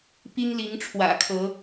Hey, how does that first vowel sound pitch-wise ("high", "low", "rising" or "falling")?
high